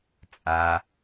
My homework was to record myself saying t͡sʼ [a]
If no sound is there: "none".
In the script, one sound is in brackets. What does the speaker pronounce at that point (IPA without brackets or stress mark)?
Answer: a